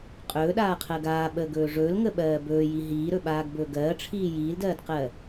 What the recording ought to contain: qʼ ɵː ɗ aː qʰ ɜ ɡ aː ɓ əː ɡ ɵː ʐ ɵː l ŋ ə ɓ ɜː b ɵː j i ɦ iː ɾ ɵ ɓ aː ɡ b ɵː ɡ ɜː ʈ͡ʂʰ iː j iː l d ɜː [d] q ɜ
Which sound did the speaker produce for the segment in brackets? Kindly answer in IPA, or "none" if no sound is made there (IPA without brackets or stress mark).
d